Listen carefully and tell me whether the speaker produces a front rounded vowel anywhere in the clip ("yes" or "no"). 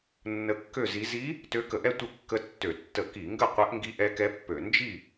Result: yes